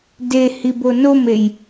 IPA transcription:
d e h i b o n o m e j

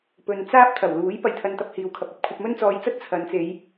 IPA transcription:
p ɵ˨ n t͡s aː˥ p̚ t̪ʰ ɐ˨˩ w l uː˨˥ j p ɐ˧ j t̪ʰ ɐ˧ n t̪ ɐ˧ p̚ h iː˨ w kʰ ɐ˨ p̚ ɐ˨˥ p̚ kʷʰ ɐ˧ p̚ m ɵ˥ n t͡s ɔː˧ j t͡s ɐ˥ t̚ t͡sʰ ɐ˨˧ n t͡s e˨˧ j

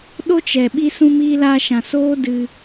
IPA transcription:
ɗ o˦ t͡ʃ ɛ˨ ɓ i˧ s ũ˧ m iː˧ l aː˧ ʃ ã˨ s oː˦ d ɨ˧

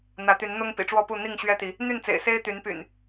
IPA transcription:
n̪ ä˨˦ t̪ y˨˦ n n̪ ʊ˦ ŋ p ḭ˨˩ ʈ͡ʂ w ɔ˥˨ p u˥˨ n̪ i˥˨ ŋ ɕ ɥ ɛ˦ t̪ i˨˦ | n̪ y˥˨ n t͡s ḛ˨˩ ɪ̯ s e˦ ɪ̯ t̪ y˨˦ n p y̰˨˩ n

